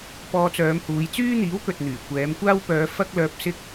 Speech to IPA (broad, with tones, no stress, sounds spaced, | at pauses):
p ɔː˧ t͡s œː˨˧ m h uː˨˧ j t͡s yː˥ n̪ iː˨˥ w k ɵ˨ t̚ n̪ yː˨˩ kʷ ɛː˨˧ m kʷ aː˥ w p œː˧ f ɐ˥ k̚ l œː˧ p̚ s ɪ˥ k̚